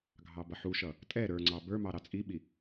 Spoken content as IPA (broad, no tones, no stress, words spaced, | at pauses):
ɡʱɑbʌħuʃʌ | tʼɛ ɾə˞ŋ͡ǀɑ bə˞mɑ ɾɑt͡sʼiɓi